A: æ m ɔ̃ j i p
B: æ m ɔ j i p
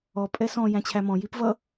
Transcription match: A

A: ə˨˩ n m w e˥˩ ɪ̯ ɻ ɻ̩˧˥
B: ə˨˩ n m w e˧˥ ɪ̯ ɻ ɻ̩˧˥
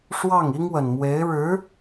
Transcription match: B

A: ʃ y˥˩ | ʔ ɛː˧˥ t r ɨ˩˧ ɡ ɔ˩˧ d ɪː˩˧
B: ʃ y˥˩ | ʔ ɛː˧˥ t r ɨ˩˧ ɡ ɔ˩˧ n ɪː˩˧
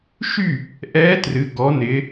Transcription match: B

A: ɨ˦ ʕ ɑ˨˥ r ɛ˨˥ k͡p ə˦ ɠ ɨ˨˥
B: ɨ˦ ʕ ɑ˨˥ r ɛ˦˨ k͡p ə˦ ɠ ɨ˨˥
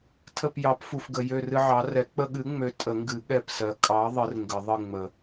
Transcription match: A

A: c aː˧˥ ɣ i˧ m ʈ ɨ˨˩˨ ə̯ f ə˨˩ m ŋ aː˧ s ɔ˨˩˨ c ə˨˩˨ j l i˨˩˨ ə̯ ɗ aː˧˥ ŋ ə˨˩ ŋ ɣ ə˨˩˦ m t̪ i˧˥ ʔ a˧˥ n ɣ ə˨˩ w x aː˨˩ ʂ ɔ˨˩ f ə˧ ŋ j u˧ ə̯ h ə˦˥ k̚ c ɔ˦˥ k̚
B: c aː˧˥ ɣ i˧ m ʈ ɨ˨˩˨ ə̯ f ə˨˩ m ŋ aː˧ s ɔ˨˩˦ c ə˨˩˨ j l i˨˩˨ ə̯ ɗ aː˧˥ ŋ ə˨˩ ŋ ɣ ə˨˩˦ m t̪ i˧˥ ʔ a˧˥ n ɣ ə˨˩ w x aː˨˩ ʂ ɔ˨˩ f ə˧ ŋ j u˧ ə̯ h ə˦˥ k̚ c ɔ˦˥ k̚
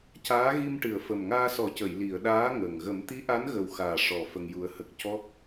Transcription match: B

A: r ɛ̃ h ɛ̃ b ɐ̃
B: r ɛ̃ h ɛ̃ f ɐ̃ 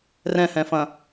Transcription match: B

